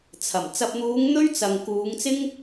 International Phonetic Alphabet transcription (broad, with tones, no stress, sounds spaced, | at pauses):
t͡sʰ ɐ˨˩ m t͡s ɐ˨ p̚ n̪ uː˨˧ ŋ n̪ ɵ˥ ɥ t͡s ɐ˨ ŋ k uː˨˧ ŋ t͡s ɪ˥ ŋ